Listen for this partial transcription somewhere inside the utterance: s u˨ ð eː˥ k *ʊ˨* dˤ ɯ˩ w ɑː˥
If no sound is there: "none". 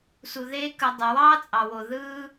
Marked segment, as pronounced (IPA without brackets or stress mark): ɯ˨